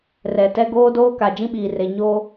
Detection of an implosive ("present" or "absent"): present